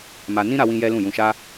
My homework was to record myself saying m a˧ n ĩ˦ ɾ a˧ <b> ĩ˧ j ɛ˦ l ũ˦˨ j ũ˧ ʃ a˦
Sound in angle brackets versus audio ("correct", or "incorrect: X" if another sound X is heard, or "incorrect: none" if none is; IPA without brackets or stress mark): incorrect: w